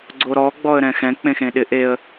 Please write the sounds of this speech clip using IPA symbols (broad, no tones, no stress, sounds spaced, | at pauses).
ɡ͡ǀ o ɾ ɔ ɡ͡b ɔ ə̯ ɾ ɛ̃ x ɛ̃ k͡p ẽ x ẽ ɗ ɪ ʔ e ə̯